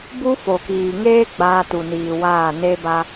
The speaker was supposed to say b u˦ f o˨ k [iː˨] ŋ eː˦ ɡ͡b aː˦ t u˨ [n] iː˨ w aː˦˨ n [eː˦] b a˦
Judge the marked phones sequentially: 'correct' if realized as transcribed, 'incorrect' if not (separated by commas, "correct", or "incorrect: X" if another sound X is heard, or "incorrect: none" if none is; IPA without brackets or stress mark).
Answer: correct, correct, incorrect: e˦